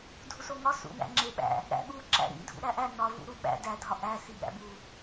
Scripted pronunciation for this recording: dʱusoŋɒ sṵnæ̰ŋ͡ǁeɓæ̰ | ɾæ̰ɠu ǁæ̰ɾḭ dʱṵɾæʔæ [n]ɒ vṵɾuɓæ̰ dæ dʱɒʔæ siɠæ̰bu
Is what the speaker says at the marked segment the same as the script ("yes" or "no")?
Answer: yes